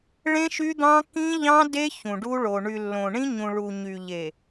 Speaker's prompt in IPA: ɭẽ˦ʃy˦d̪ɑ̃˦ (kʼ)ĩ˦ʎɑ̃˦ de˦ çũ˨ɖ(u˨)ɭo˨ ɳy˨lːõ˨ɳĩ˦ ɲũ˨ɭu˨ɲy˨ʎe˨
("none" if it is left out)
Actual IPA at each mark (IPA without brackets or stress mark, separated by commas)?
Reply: k, u˦